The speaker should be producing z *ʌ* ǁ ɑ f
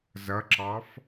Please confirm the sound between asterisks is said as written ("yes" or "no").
yes